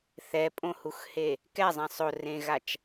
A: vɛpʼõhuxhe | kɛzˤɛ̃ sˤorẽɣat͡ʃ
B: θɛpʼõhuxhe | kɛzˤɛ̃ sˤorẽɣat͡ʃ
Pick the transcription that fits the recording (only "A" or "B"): B